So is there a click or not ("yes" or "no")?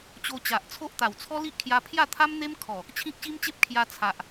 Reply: no